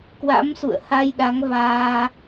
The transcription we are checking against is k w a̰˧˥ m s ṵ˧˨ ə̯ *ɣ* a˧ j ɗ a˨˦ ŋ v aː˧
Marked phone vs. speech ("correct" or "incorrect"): incorrect